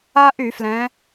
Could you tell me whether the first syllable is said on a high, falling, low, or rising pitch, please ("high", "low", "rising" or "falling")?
high